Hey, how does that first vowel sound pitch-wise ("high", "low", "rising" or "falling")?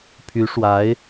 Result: rising